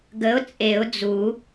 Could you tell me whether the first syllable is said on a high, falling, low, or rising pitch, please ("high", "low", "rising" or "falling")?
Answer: rising